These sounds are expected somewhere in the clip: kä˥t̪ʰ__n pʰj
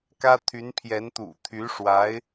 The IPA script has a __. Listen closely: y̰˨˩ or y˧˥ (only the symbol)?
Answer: y˧˥